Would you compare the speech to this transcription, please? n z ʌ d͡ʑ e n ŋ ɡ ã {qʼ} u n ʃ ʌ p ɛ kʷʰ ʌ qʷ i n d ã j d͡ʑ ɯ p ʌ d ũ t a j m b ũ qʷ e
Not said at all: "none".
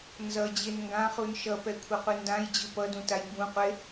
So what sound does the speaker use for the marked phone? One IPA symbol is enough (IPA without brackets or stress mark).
χ